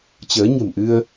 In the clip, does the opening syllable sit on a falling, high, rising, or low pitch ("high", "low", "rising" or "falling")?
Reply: rising